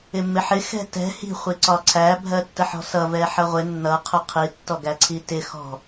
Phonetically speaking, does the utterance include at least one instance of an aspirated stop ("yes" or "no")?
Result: yes